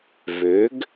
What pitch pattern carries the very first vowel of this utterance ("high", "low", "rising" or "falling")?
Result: rising